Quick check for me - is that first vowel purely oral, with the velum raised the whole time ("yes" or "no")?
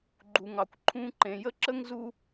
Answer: yes